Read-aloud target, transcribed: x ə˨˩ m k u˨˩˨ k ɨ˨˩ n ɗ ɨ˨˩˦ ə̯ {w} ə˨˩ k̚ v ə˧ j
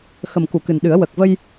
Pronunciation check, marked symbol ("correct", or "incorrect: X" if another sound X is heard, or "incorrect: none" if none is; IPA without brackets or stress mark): correct